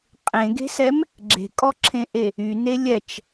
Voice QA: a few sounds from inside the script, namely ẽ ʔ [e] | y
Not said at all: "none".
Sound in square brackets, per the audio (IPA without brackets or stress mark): e